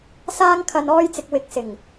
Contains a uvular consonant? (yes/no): no